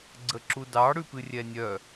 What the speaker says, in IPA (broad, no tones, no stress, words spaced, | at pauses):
ɡ͡ǀəǁudɑ ɽʉpɨrʲɛnʲœ